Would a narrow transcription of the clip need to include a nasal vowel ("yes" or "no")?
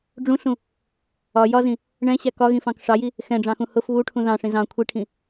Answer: yes